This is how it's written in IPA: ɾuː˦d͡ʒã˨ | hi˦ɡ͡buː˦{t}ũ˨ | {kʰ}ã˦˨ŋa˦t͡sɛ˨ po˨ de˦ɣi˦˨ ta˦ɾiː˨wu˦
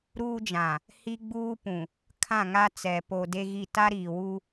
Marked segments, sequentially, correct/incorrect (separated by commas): incorrect, correct